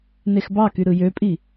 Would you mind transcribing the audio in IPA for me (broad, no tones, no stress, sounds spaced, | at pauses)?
n e x b ɑ k y ɾ ɯ j ø pʼ i